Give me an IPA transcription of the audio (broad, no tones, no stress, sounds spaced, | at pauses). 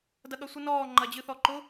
d ɐ ɠ ɐ sʷ ɨ n ɔː ŋ͡ǃ ɐ d͡ʑ ɨ θ ɔ ǃ ʊ